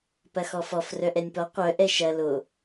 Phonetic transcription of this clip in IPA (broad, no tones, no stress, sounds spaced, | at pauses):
p ɐ x ɔ f ɔ f r œ ʔ ɛ nʲ p ɔ qʷ œ ʔ ɛ ʃ ɐ l o